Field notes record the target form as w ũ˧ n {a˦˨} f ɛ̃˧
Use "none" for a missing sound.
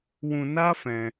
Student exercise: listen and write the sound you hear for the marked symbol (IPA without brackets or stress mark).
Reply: a˦